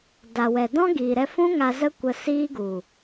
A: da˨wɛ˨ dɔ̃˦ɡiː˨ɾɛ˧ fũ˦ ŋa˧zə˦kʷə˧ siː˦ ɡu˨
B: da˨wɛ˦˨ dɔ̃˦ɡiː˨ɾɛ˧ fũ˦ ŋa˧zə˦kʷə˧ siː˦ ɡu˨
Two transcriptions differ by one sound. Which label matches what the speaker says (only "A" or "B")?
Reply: A